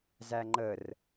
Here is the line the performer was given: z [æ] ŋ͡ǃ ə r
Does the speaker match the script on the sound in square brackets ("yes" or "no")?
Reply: yes